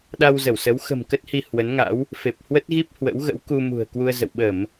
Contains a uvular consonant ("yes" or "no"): no